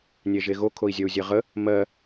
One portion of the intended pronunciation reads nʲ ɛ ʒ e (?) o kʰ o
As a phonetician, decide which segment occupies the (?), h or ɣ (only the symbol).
ɣ